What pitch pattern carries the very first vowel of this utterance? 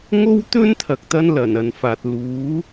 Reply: high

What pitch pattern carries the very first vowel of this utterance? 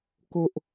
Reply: low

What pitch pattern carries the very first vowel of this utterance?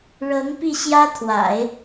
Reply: rising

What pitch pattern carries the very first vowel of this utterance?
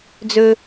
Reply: high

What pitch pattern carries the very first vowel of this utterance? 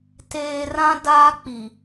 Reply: low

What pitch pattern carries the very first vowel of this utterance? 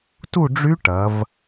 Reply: falling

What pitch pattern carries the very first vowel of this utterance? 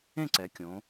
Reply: falling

